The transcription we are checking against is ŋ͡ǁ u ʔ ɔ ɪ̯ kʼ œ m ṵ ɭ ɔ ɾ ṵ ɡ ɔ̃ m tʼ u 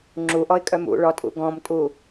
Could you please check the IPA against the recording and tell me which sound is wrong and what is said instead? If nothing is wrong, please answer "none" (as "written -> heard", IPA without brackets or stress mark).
ɾ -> tʼ